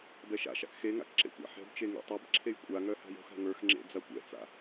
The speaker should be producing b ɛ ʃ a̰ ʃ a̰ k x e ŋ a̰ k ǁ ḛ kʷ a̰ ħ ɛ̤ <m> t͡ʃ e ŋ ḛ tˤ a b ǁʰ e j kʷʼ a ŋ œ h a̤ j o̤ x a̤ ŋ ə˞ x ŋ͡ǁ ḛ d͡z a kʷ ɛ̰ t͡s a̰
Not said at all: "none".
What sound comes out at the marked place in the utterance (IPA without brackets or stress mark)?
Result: b